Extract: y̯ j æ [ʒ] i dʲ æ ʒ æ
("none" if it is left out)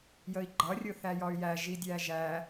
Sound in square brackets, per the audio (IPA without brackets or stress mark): ʒ